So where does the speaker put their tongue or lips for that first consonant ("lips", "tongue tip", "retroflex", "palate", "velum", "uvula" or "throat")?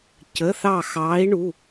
palate